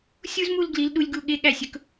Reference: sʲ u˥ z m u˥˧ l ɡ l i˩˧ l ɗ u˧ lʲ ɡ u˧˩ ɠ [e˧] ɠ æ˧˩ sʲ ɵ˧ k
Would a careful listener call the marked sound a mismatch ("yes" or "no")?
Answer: no